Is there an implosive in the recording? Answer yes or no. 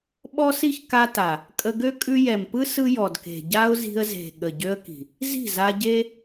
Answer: yes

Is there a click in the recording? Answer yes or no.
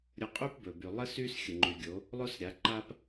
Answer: yes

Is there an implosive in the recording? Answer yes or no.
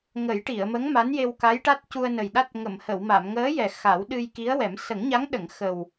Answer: yes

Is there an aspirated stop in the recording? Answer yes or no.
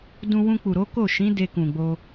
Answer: no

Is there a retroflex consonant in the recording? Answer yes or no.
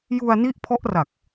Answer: no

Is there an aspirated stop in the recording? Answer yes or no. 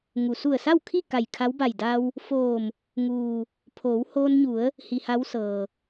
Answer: yes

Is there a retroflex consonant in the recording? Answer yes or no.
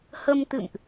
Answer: no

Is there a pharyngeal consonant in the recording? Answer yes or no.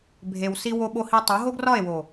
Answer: no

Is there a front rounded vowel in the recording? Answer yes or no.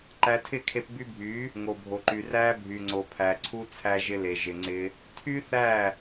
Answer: yes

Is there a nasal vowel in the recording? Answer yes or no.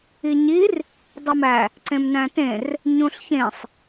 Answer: yes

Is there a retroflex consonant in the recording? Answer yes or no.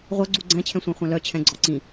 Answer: no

